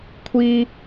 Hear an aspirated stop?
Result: yes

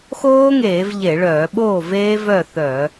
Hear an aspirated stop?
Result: no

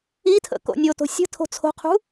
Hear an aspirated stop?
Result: yes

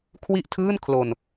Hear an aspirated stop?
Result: yes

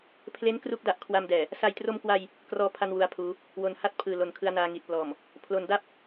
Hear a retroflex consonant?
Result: no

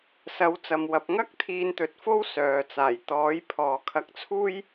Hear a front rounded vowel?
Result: yes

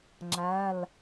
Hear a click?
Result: yes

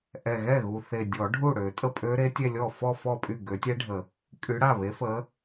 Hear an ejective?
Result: yes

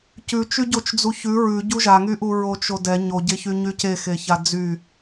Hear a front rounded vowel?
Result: yes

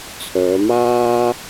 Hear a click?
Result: no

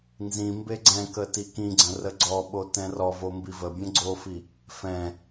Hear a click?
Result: yes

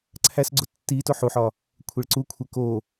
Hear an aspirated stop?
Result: yes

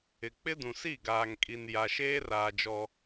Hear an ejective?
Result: yes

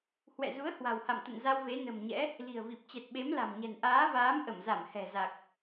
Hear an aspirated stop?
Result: no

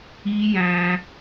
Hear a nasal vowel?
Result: yes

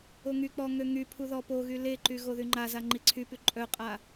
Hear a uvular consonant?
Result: yes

